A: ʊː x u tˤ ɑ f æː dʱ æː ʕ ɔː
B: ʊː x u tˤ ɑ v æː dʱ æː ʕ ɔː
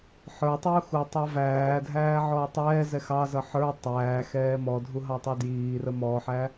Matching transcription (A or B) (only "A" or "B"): B